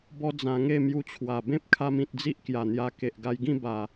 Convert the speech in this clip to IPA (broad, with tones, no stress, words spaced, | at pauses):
bɔ˦d͡zã˧ ŋe˥˧mju˧t͡ɕʰwa˨˩ bẽ˦p̚kʰa˧m ĩ˨t̚d͡zi˦ʔkja˨˩n̪ja˧ ke˨ʔɡa˧jɡĩ˥˧ ba˨˩